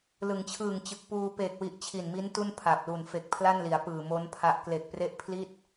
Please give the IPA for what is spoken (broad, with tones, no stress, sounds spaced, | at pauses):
l ɯ˩˦ ŋ t͡ɕʰ ɯː˨˩ ŋ t͡ɕ ɯ˨˩ k̚ p uː˧ p eː˨˩ k̚ w i˨˩ ʔ t͡ɕʰ i˨˩ n m i˦˥ n t u˥˩ n pʰ a˨˩ p̚ l u˨˩ n f e˨˩ k̚ pʰ l a˥˩ n l i˩˦ a̯ p ɯː˨˩ m o˦˥ n pʰ a˦˥ ʔ k l e˨˩ k̚ p r e˦˥ ʔ pʰ l i˥˩ t̚